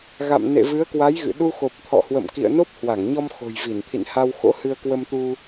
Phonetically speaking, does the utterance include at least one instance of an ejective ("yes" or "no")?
no